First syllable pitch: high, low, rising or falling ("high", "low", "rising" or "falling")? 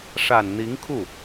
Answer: low